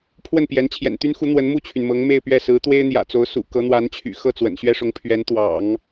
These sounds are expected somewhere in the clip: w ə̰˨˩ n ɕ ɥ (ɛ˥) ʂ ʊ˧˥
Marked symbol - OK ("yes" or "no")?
yes